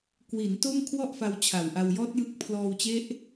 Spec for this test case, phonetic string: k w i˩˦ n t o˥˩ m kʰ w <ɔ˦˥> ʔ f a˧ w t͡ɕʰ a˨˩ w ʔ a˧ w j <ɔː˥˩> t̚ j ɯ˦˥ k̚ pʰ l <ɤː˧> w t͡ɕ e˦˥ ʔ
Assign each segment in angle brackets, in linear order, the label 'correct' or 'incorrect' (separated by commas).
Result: incorrect, incorrect, incorrect